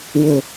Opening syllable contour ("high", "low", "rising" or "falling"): low